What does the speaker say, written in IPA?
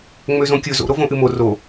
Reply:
ŋ͡m ø z õ kʲ ɵ z o̰ ɾ o v õ ʔ ɨ m o r o

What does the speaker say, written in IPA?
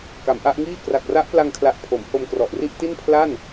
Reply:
k a˩˦ m ʔ a˦˥ ʔ ŋ iː˥˩ k r a˨˩ k̚ r a˦˥ ʔ p l a˧ ŋ kʰ l a˨˩ ʔ pʰ o˩˦ m h o˧ m k r ɔ˨˩ ʔ r i˥˩ ʔ t i˥˩ n pʰ l a˥˩ n

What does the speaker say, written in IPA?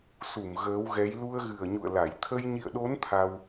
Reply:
s u˧˩ m ɣ əː˨˦ w ɣ ɛ˨˦ j l u˧ ə̯ ɣ ɨ˨˩ ə̯ ɲ ṵ˧˨ ə̯ l a˧˩ j t̪ʰ ə˧ j ɲ ḭ˧˨ ə̯ ɗ o˨˦ n t̪ʰ a˧ w

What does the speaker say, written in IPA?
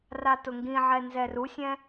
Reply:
r a t ʊ ŋ ɡ ĩ ʕ ɛ n z ɛ r u sʲ ɛ̃

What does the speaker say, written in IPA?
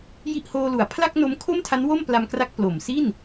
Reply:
j i˥˩ ʔ h oː˧ l u˨˩ a̯ pʰ l a˥˩ k̚ n o˦˥ m kʰ o˥˩ m tʰ a˦˥ n w o˥˩ m p l a˧ m k r a˦˥ k̚ p l o˨˩ m s i˥˩ n

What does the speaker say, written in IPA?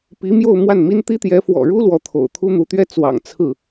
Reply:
p i˧˥ m j o˥˧ ʊ̯ m w a˥˩ n m i˥ n t̪ i˥ t̪ j ɛ˧˥ f w ɔ̰˨˩ ɻ u˥ l w ɔ˧˥ t̪ʰ o̰˨˩ ʊ̯ t̪ʰ u˥ n̪ u˧˥ t̪ ɥ ɛ˥ t͡s w ɑ̰˨˩ ŋ t͡sʰ ɹ̩˥˩

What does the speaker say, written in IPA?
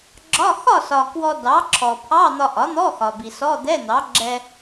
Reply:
ɡ͡ǁ ɒ˧˥˧ x ɒ˥˨ s ɒ˩ k w ɔ˧ d ɑ˩˥ ǁʰ ɔ˩ pʰ ɑ˧˥˧ n̪ ɒ˧ ʔ ɒ˩˥ n̪ ɔ˧˥˧ x ɒ˩ b i˩ s ɔ˧˥˧ d̪ ɛ˧˥˧ n̪ ɑ˩˥ ɡ͡ǁ ɛ˧

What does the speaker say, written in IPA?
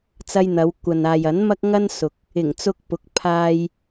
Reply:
t͡s ɐ˧ j n̪ ɐ˨˧ w kʷ ɐ˨ n aː˨ j ɐ˨˥ n m ɐ˥ k̚ ŋ ɐ˥ n s ʊ˨ k̚ | ɪ˨˩ ŋ t͡s ʊ˧ k̚ p ʊ˨˥ k̚ pʰ aː˧ j

